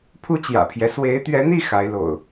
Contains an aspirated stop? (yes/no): yes